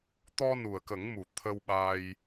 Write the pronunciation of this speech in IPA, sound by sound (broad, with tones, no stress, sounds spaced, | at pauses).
t̪ ɔ˧ n u˨˩ ə̯ k ə˨˩˦ ŋ m u˨˩ t̪ʰ ə˧ w ɓ a˧ j